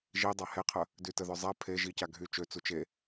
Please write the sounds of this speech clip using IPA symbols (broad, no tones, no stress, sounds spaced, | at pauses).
ʒ i dˤ a h e qʰ ə | d y t ə ð œ zˤ ɛ pʰ e ʒ i c a ɡʱ y t͡ʃ ø t͡s u t͡ʃ e